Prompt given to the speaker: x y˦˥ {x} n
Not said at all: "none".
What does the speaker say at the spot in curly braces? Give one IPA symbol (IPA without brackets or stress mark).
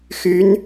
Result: none